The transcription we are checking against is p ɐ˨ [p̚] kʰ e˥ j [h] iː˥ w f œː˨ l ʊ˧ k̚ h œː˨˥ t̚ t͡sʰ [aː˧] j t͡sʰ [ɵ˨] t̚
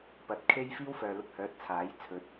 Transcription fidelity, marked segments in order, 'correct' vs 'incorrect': incorrect: t̚, incorrect: f, incorrect: aː˨˥, correct

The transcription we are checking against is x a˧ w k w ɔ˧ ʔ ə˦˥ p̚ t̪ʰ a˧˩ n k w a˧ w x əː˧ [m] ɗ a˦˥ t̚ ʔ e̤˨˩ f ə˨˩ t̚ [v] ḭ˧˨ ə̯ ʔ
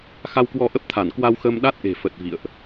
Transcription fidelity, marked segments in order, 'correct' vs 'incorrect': correct, correct

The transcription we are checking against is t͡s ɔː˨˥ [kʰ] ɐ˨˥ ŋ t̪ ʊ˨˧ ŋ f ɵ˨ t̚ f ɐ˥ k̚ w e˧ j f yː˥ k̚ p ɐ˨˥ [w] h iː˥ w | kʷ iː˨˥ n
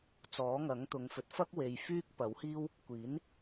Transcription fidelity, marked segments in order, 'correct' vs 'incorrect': incorrect: ŋ, correct

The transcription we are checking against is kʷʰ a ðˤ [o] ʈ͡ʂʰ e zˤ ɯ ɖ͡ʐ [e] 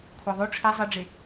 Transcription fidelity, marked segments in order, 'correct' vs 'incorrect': correct, correct

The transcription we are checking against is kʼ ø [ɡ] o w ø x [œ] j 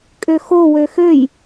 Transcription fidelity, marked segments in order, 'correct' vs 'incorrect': incorrect: x, incorrect: ø

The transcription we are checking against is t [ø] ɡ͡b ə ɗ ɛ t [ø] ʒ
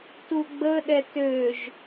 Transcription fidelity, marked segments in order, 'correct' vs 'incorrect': incorrect: u, correct

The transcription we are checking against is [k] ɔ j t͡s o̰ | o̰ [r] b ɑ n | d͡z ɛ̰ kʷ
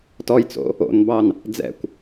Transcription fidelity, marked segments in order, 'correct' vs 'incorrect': incorrect: t, incorrect: n

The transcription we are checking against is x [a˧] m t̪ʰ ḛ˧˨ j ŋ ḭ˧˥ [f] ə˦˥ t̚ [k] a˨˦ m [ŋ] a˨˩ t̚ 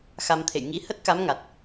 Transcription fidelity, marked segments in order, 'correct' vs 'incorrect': correct, incorrect: h, correct, correct

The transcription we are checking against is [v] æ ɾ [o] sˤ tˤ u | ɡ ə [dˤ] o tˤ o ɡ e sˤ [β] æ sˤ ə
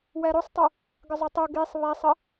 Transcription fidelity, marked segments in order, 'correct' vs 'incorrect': incorrect: w, correct, incorrect: zˤ, correct

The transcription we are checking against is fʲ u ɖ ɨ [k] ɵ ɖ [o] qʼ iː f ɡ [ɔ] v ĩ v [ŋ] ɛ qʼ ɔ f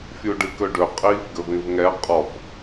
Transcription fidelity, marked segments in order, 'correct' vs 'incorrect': correct, incorrect: ɵ, incorrect: ɵ, correct

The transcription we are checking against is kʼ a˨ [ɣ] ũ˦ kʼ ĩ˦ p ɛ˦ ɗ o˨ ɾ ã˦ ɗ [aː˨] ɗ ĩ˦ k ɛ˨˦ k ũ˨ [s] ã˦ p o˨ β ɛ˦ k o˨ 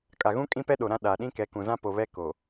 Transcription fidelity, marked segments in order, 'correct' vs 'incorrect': correct, correct, incorrect: z

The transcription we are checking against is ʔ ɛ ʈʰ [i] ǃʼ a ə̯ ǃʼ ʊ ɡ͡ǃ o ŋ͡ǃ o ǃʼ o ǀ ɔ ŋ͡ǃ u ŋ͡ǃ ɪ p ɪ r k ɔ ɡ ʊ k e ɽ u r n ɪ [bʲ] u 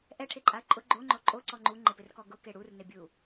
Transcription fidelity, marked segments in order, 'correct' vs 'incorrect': incorrect: e, correct

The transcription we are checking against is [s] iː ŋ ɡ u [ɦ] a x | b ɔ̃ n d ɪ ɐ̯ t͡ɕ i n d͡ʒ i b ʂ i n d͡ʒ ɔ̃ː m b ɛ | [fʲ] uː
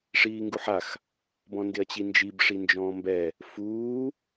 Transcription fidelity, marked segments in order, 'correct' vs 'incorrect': incorrect: ʂ, incorrect: ħ, incorrect: f

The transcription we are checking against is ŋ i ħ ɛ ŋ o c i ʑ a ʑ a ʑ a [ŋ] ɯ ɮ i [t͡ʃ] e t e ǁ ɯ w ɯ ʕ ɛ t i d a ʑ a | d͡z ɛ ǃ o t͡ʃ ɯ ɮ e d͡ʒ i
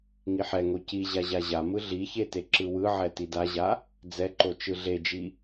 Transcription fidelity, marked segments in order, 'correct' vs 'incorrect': incorrect: m, incorrect: ç

